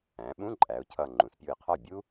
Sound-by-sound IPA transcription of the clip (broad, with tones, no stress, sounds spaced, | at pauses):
æ̃˩˧ ɓ ũ˧˥˧ ǃʼ æ˩˧ ʊ̯ cʰ ʌ˧˩ ŋ͡ǃ ũ˩˧ s pʲ u˧˩ ɪ̯ qʰ ɒ˥˩ bʲ u˥